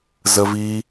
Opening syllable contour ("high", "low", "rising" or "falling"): high